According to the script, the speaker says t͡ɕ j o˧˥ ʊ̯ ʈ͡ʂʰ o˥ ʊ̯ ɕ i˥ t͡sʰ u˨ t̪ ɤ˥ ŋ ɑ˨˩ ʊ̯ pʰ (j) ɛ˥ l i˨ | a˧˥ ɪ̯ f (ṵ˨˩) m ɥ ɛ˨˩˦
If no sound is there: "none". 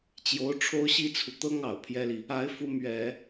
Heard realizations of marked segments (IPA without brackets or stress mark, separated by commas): j, u˧˥